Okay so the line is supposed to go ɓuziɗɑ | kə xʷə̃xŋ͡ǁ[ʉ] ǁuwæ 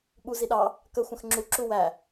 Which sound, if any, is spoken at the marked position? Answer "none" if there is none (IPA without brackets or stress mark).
u